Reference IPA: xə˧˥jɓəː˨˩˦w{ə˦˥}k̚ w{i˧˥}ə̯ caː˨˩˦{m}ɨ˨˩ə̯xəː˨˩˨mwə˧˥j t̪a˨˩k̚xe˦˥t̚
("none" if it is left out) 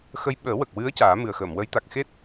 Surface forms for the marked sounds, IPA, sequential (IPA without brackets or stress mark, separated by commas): ə˨˩, ɨ˧˥, m